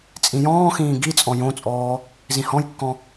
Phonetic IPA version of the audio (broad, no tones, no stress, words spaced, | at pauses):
t͡sʼĩjɔ̃ːxĩː ɡit͡sʼɔ̃ jõt͡sʼɔː | zĩhɔ̃jkːɔ̃